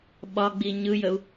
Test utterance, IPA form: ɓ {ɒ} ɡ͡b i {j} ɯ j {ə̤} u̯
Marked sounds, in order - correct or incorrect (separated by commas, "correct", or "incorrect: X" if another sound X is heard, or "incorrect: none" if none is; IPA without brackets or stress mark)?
correct, incorrect: ɲ, incorrect: ə